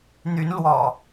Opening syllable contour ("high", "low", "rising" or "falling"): rising